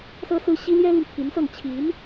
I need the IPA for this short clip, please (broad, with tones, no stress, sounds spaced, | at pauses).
s ɤ˥ s ɹ̩˥ ɕ i˥ l j ɛ˥ l y˨ n t̪ʰ i˧˥ n s ɤ˥˩ ŋ t͡ɕʰ i˧˥ n